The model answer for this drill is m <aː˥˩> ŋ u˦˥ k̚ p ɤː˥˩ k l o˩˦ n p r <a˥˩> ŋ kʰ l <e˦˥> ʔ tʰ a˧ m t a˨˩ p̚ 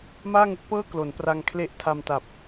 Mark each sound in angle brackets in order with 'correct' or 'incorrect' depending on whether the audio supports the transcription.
correct, incorrect: a˧, correct

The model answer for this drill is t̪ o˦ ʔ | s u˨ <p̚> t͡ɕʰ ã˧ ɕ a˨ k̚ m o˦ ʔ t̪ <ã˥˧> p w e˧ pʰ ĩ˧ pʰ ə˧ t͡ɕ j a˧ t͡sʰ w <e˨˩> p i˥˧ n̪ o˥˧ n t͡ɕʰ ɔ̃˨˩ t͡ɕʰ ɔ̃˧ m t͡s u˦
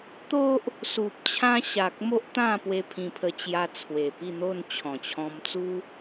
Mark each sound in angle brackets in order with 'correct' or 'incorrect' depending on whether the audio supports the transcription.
correct, correct, correct

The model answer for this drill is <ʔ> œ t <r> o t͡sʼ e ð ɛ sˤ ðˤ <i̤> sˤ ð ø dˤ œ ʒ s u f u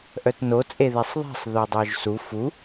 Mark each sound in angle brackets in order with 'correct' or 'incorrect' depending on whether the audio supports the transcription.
correct, incorrect: n, correct

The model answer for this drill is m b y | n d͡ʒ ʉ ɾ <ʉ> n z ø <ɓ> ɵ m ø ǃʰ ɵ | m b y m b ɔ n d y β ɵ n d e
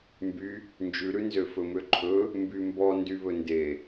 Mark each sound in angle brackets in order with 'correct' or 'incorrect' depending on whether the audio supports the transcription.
correct, incorrect: f

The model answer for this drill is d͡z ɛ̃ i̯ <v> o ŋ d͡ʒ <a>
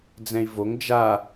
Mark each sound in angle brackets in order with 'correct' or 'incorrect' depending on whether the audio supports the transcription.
correct, correct

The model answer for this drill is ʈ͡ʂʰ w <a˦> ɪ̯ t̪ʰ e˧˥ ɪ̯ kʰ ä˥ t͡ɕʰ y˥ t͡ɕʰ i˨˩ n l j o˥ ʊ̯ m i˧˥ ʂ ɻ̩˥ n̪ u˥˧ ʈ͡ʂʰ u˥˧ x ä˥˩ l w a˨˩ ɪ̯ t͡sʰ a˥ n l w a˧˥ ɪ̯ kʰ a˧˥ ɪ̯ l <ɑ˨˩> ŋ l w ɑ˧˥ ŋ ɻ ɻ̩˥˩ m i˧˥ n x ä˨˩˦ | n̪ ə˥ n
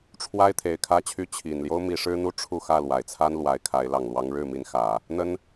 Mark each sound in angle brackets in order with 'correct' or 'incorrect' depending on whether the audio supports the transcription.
incorrect: a˥, correct

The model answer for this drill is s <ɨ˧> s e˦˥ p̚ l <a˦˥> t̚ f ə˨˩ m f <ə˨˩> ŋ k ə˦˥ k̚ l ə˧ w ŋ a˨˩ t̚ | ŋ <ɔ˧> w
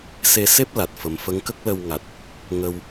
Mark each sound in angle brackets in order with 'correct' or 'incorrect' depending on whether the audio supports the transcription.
incorrect: e˧, incorrect: a˨˩, incorrect: ə˧˥, incorrect: ə˧

